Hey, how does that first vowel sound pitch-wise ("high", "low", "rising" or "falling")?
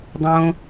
low